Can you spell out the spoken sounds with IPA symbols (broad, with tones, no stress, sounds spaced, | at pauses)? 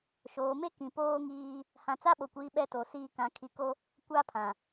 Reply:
ʃ oː˨ m e˦ k ĩ˨ p oː˦ ŋ iː˦ | h ã˨ t͡s a˦ ɓ o˨ kʷ iː˨ ɓ ɛ˦ t o˨ s iː˦ k ã˨ kʰ i˨ k o˦ | kʷ aː˦ pʰ ã˨